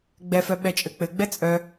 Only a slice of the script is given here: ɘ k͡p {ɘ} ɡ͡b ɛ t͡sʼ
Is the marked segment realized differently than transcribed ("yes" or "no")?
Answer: no